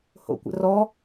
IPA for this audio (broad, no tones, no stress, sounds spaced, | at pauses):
h o̰ kʷ ə̰ r ɔ